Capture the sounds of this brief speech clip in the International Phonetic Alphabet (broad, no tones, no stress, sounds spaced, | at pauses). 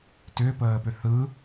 t ʏː p əː p ʏ θ ɯ